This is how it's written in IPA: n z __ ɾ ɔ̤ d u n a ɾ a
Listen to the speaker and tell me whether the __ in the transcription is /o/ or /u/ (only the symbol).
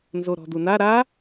o